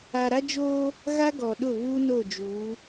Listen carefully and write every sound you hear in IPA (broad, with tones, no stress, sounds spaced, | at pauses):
a˨ ɾ a˦ d͡ʒ oː˦ | ɣ a˦ ɡ ɔ˨ ɗ ʊ˦˨ β uː˦ n o˦˨ d͡ʒ uː˨˦